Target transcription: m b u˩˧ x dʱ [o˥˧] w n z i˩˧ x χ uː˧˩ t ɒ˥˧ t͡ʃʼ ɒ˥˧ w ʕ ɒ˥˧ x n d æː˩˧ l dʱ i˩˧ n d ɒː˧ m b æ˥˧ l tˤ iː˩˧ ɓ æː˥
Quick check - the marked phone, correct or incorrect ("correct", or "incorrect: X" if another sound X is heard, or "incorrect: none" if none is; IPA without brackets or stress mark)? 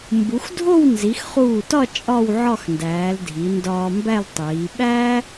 correct